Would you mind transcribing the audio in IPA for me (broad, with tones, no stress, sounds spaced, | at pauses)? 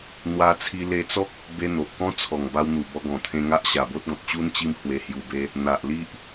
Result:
n̪ w a˦ t͡sʰ i˦ l e˧ t͡s ɔ˦ k̚ | b e˦ n̪ o˨ ʔ k ɔ̃˦ t͡sʰ ɔ˨˩ ŋ b a˧ w n̪ u˨˩ b ɔ˧ ɡ ɔ̃˨˩ t̪ʰ ẽ˧ ŋ a˦ ʔ ɕ a˨˩ b o˦ t̚ ɡ ɔ̃˨ t̚ t͡ɕ u˦ n t͡ɕ i˦ m h w e˧ h j u˧ b e˦ | n̪ a˨ ʔ l i˦ ʔ